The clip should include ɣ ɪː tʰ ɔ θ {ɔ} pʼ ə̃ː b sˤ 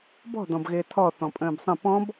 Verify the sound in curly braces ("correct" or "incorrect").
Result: incorrect